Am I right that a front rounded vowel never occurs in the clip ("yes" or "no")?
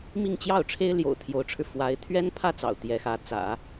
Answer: yes